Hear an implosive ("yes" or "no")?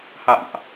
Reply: no